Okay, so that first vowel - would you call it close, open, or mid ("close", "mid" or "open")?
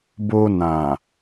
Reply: mid